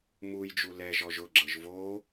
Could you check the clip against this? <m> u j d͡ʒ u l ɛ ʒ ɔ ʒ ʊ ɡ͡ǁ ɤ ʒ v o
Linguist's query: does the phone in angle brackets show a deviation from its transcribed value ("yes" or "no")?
no